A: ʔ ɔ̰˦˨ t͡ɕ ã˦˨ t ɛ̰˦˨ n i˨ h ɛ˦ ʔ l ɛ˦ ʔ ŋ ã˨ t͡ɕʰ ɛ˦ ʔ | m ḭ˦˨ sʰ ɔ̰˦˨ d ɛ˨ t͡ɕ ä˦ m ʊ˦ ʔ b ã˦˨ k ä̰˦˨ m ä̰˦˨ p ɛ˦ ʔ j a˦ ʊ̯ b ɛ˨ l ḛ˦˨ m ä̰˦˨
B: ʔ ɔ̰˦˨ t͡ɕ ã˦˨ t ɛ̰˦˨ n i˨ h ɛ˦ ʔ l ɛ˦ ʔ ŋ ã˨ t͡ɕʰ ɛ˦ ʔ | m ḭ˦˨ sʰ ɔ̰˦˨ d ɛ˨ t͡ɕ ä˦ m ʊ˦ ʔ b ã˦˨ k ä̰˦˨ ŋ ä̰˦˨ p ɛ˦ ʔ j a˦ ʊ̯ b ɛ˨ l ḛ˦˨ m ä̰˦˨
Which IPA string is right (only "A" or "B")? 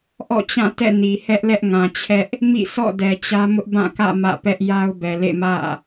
A